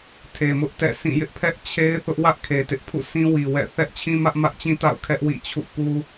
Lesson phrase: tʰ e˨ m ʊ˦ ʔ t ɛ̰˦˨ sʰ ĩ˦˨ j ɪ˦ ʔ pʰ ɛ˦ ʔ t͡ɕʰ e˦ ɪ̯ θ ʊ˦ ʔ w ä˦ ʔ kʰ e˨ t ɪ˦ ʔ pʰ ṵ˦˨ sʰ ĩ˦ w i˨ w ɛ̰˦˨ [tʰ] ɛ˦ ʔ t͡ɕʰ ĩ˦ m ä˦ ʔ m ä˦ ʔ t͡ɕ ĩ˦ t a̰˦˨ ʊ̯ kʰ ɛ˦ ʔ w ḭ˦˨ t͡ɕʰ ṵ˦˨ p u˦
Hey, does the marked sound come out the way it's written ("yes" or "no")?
no